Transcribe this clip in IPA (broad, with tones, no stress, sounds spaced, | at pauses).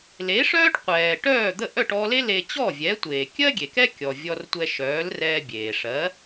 l e˩˥ ʂ œː˥ ʈ qʷ ɛː˩ ʈ œː˥˩ d̪ ə˥˩ ʔ œ˥˩ ʈ ɔ˧ l e˥ l e˧ t͡ɕ ɔ˥˩ vʲ ɛ˩˥ tʷ eː˩ kʲ ɜ˥ ɡʲ e˩ k ɛ˥ kʲ ɔ˩ vʲ ɔ˧ r tʷ ɛ˧ ʃ œː˩˥ l r ɛː˧ bʲ eː˩ ʂ ɜ˩˥